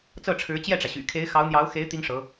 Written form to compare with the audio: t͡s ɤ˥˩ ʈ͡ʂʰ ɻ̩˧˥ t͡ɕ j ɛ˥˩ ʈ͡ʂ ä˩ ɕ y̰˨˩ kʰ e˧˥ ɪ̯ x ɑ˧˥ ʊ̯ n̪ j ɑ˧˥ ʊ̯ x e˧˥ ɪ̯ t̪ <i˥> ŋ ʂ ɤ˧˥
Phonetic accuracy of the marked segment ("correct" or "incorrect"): correct